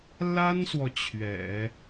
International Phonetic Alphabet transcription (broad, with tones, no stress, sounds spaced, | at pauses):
l a˥ n s w ɔ˨ t͡ɕʰ ɥ ɛ̰˨˩˦